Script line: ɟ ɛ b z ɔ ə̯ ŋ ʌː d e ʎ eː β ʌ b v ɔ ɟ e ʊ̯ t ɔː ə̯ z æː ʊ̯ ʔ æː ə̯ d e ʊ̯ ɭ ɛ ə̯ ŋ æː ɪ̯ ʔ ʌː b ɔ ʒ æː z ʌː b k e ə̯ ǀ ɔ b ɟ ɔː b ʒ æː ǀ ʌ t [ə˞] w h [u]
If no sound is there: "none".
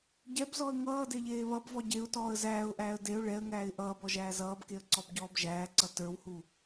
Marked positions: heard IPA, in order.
ə˞, u

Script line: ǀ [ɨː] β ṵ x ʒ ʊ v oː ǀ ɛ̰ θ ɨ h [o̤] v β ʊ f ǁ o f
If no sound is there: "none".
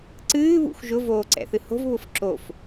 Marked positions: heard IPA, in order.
ɨː, o̤

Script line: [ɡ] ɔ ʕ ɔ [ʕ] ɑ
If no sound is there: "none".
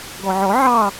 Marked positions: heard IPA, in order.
ɡ, ʕ

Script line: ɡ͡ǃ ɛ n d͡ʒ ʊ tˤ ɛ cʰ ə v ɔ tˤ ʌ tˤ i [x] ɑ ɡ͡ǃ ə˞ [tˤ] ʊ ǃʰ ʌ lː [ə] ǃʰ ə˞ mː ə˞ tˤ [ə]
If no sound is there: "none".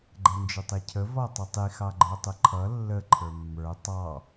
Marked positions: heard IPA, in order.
x, tˤ, ə, ɑ

